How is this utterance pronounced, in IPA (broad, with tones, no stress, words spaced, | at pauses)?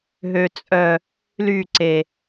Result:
ɦø˨t͡sʼœ˨ | ly˦˨ǀe˨